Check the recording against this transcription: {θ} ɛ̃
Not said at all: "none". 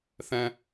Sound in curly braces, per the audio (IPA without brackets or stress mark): θ